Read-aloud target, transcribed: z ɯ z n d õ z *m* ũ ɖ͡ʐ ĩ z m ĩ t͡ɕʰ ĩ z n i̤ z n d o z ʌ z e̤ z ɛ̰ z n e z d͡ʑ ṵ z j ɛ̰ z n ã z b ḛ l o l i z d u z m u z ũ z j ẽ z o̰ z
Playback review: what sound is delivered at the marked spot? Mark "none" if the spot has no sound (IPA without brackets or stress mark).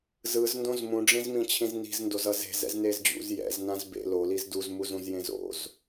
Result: m